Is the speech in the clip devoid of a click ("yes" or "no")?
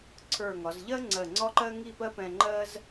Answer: no